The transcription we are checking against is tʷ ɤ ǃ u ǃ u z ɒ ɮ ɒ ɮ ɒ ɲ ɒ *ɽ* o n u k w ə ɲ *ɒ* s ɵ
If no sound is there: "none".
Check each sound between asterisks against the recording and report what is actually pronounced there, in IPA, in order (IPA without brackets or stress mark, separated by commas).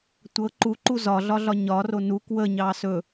r, ɑ